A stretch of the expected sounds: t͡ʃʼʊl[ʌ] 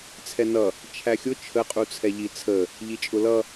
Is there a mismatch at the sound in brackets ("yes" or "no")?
no